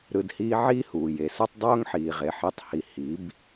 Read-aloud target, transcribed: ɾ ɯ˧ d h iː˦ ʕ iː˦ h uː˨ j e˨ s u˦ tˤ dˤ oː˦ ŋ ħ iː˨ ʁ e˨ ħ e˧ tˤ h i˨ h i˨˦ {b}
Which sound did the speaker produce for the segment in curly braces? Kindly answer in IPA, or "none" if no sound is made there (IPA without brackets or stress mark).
b